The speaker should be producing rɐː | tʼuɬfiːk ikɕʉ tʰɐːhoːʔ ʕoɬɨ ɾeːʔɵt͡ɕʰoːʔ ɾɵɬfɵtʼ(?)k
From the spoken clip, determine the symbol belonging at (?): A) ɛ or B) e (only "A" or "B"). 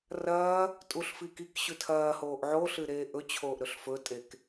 B